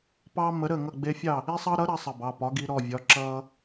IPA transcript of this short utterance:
p ɑ˦ m ə˨˥ ɾ ə˥˨ ŋ ʌ˥˨ ɡ͡b e˦ fʲ ɑ˥˨ | i˦ sˤ ʌ˦ ɾ ʌ˨˥ ɾ ɐ˨˥ sˤ ɐ˩˧˩ b ɑ˩˧˩ p ɒ˨˥ ɡ i˨˥ ɾ ɔ˩˧˩ vʲ ɒ˨˥ ǁ ʌ˦

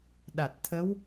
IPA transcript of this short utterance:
ɗ a˨˩ t̚ t̪ʰ ə˧˥ w

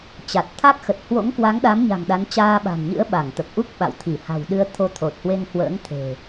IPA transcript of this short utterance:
t͡ɕ a˨˩ t̚ t̪ʰ a˦˥ k̚ x ə˨˩ t̚ h w o̰˧˥ ŋ k w a˨˦ ŋ ɗ a˨˦ m ɲ a̤˨˩ ŋ ɗ a˨˦ n t͡ɕ aː˧ ɓ a̤˨˩ n ɲ ɨ̰˧˥ ə̯ ɓ a˧˩ ŋ t̪ ə˨˩ p̚ ʔ u˦˥ k̚ ɓ a̰˧˨ w t̪ʰ i˧˩ h a̤˨˩ w ɗ ɨ˧ ə̯ t̪ʰ o˧ t̪ʰ o˨˩ t̚ h w e˧ ŋ h w ə̰ː˧˥ ŋ t̪ʰ e̤˨˩

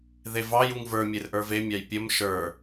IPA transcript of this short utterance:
ð e v ɑ j u ŋ v ə˞ mʲ e r ʔ ə˞ v e mʲ ɑ j pʲ ə m ʃ ə˞

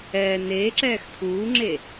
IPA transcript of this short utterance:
ɛː n eː ǁ ɛː x tʰ uː ŋ͡ǁ e

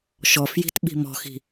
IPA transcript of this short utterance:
ʃ ɔ f j i̤ t ɓ i̤ m ɔ̤ x i̤

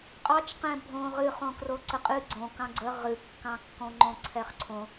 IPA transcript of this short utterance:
qʼ ɑ t͡ʃ q ɛ̃ bʱ õ ʁ ɨ χ õ k r o ǀ ə qʼ ɨ ɡ͡ǀ õ k ɑ̃ ɡ͡ǀ ə ʁ ɨ kː ɑ̃ kː õ ŋ͡ǃ õ ǀʰ ɛ χ ǀʰ õ

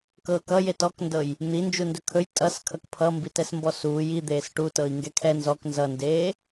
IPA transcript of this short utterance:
k ɤː k ʌ j e t ɔ k n d ɤ j | n̪ i n d͡ʒ u n d ɵ kʰ ɵ j tʼ ʌ s kʰ ʌ k pʰ ʌ m b i t ɛ s m b ɔ s uː j i d̪ eː s ʈ u t ɤ i̯ ŋ ɡ ɛ kʰ ɛ n z ɔ k n z ʌ n d eː

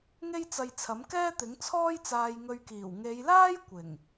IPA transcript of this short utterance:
ŋ e˥ j t͡s ɐ˧ j t͡sʰ ɐ˨˥ m k ɛː˥ t̪ ɪ˨˥ ŋ t͡sʰ ɔː˥ j t͡s aː˧ j ŋ ɵ˧ ɥ k iː˨˩ w ŋ e˨˧ j l aː˥ j kʷ ɪ˨˩ ŋ

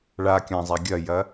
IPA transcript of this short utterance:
ɭ a kʲ ã zˤ a ɡʲ ɐ j ɐ

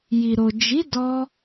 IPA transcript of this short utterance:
j i˨ ɾ o˨ d͡ʒ i˨˦ d ɔ˧

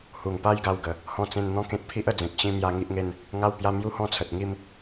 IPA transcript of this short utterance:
h u˨˩ ŋ p a˦ j ɡ a˧ w ɡ ə˨˩ | h ɔ̃˧ t͡s ẽ˧ n n̪ ɔ̃˥˧ k ẽ˦ t̚ pʰ i˦ ʔ ə˧ d͡z ẽ˨ k̚ ɕ ĩ˥˧ m j a˥˧ ŋ i˦ ʔ ŋ e˦ n | ŋ a˥˧ w p j a˦ m j u˥˧ h ɔ̃˥˧ t͡sʰ ə˨ t̚ ŋ i˦ m

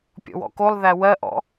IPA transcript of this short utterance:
pʲ ɔ̰ w ɔ̰ k o lˠ ð æ w ɜ ʔ ɔ̰

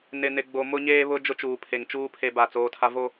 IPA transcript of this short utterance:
n ɪ˨ n ɪ˨ ɡ͡b o˨ m ʊ˦ ɲ eː˦ β ʊ˦ d͡ʒ ʊ˦ t͡ʃ uː˨ pʰ e˨ ŋ t͡ʃ uː˦ pʰ e˦ b a˦˨ t͡s oː˦ tʰ a˦ v o˦

